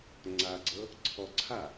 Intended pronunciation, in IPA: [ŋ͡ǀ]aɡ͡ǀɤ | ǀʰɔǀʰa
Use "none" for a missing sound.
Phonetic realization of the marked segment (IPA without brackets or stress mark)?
ŋ͡ǀ